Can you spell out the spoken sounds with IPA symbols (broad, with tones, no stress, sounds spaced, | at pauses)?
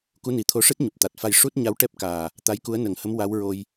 k u˧˥ n i˨˩ t̪ʰ o˧˥ ʂ ɨ˦˥ t̚ ɲ u˨˩ p̚ t̪ a˨˩ t̚ f a˧ j ʂ u˦˥ t̚ ɲ a˧˥ w ʈ ɛ˦˥ p̚ k aː˨˩ | t̪ a˧˥ j k u˧˥ ə̯ n ə˨˩˦ ŋ h ə˧˥ m w a˧˥ w ɹ o˧ j